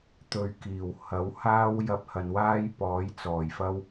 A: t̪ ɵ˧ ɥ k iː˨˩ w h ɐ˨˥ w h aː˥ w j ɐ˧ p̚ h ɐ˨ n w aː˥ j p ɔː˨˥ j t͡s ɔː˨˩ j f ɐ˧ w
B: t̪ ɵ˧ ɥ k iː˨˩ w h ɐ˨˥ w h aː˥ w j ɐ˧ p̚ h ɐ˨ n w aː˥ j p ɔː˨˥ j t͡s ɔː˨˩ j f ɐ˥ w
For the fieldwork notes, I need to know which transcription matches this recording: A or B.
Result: B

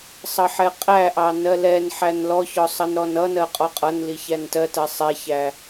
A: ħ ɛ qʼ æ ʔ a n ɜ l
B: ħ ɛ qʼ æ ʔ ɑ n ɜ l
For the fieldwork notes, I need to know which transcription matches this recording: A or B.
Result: B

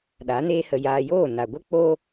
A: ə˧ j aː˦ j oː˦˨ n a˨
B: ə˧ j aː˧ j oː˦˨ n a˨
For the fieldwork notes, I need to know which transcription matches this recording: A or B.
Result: B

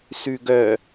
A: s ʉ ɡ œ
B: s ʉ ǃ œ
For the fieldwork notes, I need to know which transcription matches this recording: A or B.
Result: A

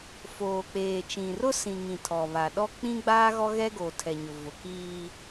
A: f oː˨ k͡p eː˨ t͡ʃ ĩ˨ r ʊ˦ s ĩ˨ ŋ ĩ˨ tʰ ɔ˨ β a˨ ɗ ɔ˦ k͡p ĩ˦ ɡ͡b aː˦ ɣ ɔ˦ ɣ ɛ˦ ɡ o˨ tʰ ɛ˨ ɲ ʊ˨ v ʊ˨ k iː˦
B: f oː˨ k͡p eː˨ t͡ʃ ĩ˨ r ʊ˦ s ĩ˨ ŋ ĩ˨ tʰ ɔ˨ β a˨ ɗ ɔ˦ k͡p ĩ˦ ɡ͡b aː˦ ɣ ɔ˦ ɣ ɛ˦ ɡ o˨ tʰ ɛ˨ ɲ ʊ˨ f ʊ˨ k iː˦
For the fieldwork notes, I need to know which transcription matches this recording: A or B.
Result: A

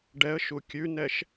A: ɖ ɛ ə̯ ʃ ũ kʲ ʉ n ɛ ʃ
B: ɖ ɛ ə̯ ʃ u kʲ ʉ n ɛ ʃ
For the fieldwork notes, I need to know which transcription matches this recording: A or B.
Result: B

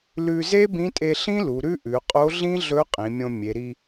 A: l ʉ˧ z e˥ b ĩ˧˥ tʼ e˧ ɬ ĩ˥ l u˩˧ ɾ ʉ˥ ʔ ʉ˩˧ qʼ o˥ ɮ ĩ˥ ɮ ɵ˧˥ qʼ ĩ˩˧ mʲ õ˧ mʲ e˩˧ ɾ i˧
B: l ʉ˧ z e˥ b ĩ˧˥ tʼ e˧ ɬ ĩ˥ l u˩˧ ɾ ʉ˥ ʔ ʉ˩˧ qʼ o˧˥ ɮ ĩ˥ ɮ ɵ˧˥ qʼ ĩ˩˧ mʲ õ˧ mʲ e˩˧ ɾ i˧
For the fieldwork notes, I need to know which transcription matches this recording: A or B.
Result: B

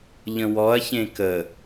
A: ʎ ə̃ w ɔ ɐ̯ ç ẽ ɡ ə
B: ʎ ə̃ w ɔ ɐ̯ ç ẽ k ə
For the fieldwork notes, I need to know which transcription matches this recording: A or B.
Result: B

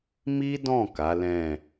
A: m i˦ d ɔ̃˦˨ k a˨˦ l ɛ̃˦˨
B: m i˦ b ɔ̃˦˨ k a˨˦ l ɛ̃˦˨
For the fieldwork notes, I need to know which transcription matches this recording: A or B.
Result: A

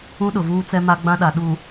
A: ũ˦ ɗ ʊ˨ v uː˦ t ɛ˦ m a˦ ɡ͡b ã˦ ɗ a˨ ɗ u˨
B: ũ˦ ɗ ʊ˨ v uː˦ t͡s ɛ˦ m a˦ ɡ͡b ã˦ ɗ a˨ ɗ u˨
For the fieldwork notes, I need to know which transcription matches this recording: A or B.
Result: B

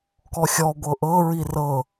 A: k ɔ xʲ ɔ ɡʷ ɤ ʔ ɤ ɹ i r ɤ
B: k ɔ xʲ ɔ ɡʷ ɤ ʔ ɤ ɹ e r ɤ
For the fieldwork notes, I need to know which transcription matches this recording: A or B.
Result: A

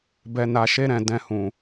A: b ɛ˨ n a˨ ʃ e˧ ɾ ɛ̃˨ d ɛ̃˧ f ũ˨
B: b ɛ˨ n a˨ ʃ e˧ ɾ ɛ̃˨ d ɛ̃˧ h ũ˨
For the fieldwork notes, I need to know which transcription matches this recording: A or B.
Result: B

